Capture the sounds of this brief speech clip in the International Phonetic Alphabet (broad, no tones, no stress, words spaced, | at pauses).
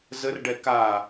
zərɖɛ ka